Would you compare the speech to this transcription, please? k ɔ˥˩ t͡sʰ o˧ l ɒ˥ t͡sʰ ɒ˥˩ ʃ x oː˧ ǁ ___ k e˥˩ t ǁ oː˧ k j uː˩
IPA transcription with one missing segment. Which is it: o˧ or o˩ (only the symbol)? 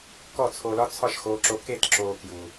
o˧